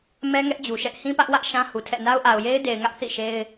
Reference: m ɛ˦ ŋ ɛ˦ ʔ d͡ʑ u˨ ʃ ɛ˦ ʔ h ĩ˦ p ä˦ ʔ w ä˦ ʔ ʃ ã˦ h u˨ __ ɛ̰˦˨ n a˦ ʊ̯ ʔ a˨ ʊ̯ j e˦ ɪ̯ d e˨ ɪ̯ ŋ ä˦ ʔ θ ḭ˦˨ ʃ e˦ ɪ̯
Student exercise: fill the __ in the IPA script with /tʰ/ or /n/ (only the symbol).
tʰ